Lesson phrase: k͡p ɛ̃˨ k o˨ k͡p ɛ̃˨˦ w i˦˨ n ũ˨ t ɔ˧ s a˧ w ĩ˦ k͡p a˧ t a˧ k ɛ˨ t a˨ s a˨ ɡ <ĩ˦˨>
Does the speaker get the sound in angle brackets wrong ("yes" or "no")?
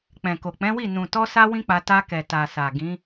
yes